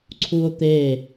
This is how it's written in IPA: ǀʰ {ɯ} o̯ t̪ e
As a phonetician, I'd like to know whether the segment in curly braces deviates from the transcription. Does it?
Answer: yes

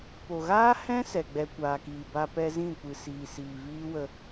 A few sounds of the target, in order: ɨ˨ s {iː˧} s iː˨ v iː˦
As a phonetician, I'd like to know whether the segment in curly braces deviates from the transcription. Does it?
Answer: yes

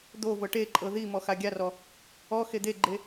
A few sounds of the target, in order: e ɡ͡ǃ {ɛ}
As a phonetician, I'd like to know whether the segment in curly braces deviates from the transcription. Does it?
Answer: yes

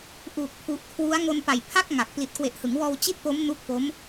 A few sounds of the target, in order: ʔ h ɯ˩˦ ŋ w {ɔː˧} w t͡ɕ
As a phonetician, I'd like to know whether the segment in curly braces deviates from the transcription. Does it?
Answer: no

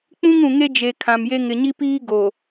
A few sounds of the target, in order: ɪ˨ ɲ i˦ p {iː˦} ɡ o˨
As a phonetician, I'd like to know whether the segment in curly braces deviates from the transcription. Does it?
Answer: no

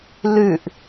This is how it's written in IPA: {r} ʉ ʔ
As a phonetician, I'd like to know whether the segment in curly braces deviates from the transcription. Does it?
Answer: yes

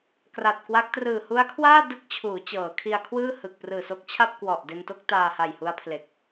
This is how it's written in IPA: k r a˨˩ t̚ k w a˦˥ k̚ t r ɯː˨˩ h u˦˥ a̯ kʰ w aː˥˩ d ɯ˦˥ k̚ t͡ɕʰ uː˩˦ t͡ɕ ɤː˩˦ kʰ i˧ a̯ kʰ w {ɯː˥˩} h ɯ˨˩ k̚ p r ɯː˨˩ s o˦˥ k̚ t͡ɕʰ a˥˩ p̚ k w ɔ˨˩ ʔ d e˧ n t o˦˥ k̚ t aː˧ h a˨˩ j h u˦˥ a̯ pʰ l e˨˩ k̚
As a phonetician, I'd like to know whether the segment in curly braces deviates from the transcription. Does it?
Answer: no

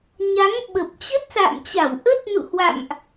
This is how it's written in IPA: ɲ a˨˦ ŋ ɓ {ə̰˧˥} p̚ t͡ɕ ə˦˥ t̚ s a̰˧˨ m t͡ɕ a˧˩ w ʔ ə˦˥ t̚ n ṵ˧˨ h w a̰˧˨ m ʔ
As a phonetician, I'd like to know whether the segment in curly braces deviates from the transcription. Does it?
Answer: yes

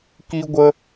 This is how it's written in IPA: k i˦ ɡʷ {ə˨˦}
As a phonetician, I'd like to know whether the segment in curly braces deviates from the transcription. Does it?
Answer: yes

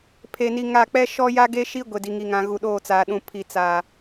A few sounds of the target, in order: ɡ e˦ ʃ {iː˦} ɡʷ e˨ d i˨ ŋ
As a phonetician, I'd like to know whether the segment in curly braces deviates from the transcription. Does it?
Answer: yes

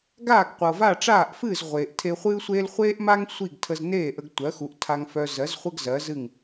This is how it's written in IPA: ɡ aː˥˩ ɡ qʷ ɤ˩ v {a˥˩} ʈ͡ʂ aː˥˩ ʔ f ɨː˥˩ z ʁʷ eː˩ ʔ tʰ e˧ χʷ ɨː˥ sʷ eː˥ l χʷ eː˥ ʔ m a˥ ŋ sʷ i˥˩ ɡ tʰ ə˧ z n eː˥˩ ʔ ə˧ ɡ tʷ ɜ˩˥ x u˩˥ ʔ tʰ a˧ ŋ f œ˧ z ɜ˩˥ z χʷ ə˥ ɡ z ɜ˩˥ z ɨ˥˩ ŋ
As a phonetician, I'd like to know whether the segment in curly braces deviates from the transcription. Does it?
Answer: no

